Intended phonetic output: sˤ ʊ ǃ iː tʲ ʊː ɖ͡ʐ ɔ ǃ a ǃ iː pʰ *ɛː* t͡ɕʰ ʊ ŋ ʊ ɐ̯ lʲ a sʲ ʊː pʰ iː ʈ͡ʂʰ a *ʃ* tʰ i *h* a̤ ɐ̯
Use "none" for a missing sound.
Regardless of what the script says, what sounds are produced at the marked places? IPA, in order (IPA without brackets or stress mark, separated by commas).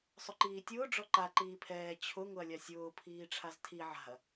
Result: ɛː, z, ʕ